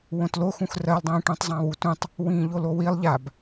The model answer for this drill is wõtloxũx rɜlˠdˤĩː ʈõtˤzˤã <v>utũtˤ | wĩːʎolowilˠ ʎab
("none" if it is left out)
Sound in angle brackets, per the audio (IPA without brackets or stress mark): w